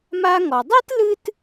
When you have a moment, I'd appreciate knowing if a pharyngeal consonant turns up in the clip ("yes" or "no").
no